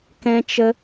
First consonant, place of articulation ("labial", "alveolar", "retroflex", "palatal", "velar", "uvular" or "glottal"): velar